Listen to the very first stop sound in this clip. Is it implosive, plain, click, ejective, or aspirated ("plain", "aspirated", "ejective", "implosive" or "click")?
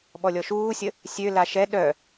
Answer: implosive